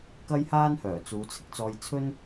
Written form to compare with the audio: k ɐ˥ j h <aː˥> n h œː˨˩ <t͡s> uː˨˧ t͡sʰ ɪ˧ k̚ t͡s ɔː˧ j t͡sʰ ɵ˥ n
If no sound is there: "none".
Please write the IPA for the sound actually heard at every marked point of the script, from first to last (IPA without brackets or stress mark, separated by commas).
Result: aː˥, t͡s